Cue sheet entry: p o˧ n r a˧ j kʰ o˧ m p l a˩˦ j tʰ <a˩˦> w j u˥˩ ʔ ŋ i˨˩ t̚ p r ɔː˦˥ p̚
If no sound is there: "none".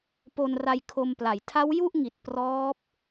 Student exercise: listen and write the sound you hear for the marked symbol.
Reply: a˦˥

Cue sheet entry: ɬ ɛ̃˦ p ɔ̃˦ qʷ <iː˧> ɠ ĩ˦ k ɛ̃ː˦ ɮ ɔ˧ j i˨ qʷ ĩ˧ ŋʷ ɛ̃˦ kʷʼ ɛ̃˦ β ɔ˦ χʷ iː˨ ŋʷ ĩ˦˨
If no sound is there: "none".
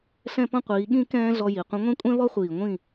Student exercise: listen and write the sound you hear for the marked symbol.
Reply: iː˨˦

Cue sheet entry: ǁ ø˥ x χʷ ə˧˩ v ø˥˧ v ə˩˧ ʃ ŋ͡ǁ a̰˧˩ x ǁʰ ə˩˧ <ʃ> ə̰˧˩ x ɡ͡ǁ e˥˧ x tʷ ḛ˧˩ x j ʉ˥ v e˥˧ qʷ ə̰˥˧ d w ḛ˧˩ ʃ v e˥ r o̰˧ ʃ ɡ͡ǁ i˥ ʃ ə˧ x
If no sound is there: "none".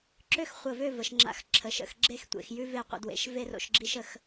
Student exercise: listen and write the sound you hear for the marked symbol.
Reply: ʃ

